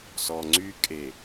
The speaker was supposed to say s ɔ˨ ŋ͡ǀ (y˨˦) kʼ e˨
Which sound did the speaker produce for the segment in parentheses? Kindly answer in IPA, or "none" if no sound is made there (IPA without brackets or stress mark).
y˦